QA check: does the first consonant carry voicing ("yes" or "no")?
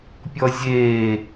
no